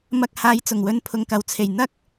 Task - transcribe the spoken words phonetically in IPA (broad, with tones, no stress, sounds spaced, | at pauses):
m ɐ˧ k̚ h aː˧ j t͡s ʊ˨˩ ŋ w ɵ˧ n pʰ ʊ˨ ŋ k ɐ˨˩ w t͡sʰ e˨˩ j n̪ ɐ˥ k̚